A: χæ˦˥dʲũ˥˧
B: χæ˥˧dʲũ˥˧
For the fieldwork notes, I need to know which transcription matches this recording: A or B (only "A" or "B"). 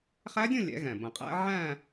A